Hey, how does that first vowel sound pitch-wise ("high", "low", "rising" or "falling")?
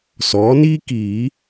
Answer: rising